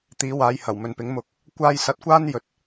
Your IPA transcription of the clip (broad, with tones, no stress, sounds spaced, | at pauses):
t̪ iː˨˧ w aː˨˧ j h ɐ˨˩ w m ɵ˨ n p ɪ˨˥ ŋ m ʊ˧ k̚ | kʷ aː˥ j s ɐ˧ t̚ kʷ aː˥ n j ɵ˨˥ t̚